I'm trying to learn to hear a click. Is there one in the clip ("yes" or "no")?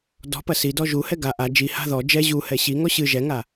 no